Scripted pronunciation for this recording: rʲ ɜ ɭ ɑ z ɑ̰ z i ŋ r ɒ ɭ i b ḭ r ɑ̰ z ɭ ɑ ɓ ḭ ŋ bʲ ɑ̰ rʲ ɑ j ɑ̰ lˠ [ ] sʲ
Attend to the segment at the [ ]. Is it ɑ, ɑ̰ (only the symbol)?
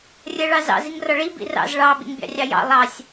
ɑ